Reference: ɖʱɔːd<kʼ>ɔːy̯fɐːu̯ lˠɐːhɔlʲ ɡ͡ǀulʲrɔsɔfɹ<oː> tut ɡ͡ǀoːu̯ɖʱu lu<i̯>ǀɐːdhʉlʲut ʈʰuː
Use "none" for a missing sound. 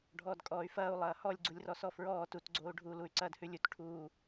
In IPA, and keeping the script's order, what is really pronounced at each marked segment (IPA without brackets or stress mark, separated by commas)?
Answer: kʼ, ɔː, y̯